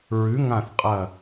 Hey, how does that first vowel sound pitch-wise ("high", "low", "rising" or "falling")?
rising